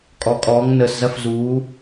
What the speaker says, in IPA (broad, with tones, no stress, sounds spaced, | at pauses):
kʼ ɔ˧˥ kʼ ɔː˧˥ ŋ n əː˧ s z ɐ˥ f z uː˧˥